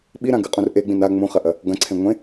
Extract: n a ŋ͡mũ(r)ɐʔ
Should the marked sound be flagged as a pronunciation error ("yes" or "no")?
yes